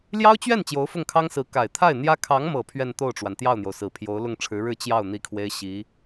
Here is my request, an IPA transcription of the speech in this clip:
l j ɑ˥ ʊ̯ t͡ɕ ɥ ɛ˥˩ n t͡ɕ j o˧˥ ʊ̯ f ʊ˥˩ ŋ kʰ ɑ˥ ŋ s ɹ̩˧˥ k a˨˩ ɪ̯ t̪ʰ a˥˩ ɪ̯ n̪ j ä˥ kʰ ɑ˧˥ ŋ m ɤ˨˩ pʰ ɥ ɛ˥˧ n t̪ o˥˩ ʊ̯ ʈ͡ʂ w a˩ n t̪ j ɑ˥˩ ʊ̯ n̪ j o˩ ʊ̯ s ɹ̩˨˩ pʰ j o˧˥ ʊ̯ l ʊ˥˩ ŋ ʈ͡ʂʰ ɻ̩˧˥ ɻ ɻ̩˥˧ t͡ɕ j ɑ˥˩ ʊ̯ n̪ i˥ kʰ w e˥ ɪ̯ ɕ i˧˥

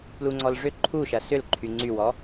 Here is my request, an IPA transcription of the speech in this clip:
p l u ŋ͡ǀ ɔ l ʐ ʏ ǃʰ u ʃ ɐ s ʏ l ǃʰ y ŋ͡ǀ y w ɔ

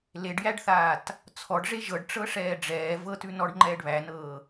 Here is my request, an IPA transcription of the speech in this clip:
l e ɖ j æ ɖ θ aː t | t͡sʰ ɔ ɖ ʐ e ʒ ɤ ɖ ʈ͡ʂ ɤ ʂ ɛː ɖ͡ʐ ɛː v ɤ t ʉ n ɔ ɖ ŋ͡ǃ ɛː ɖ β æ n ɤː

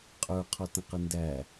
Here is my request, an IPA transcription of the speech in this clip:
qʼ ə˞ qʰ ɔ t ə̃ q ə n d æ

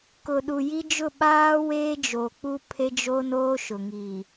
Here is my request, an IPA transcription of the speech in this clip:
k ʊ˨ ɗ u˨ j i˦ d͡ʒ ʊ˦˨ ɓ aː˦ w eː˦ d͡ʒ o˨ k͡p u˦ pʰ e˦ d͡ʒ o˦ n oː˦ ʃ ʊ˨ ŋ iː˨

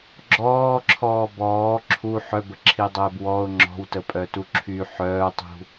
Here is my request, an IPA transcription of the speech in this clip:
ɡ͡ǁ ɔː ǁʰ ɔː b ɔː ǁʰ u ħ œ b ə ǁʰ i dˤ ɛː b w ɔ ʊ̯ ŋ͡ǁ ɔ̤ w t ə pʼ œ t u ǁʰ y ħ œː tˤ ṳ

